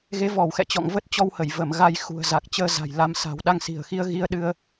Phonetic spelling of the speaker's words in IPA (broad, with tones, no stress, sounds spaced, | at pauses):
ɣ e˨˦ v ɔ˧˩ w x ɛ̰˧˨ t͡ɕ ɔ̰˧˨ ŋ v ə˦˥ t̚ t͡ɕ ɔ˧ w h ə˧˩ j v ə˧˩ m ɣ a˧ j x ṳ˨˩ ə̯ z a˨˩ k̚ t͡ɕ əː˧ z a̤˨˩ j l a˧ m s a̤˨˩ w ɗ a˧ ŋ s i̤˨˩ ə̯ x i˧ ə̯ ɣ i˧ ə̯ ɗ ɨ˧ ə̯